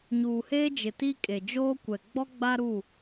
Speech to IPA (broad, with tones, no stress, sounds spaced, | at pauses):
ɲ uː˨ h eː˦ d͡ʒ ɪ˨ t i˦ kʼ e˨ d͡ʒ oː˦ kʷ ɛ˨ ɡ͡b ɔ˦ ɡ͡b a˦ ɾ u˦˨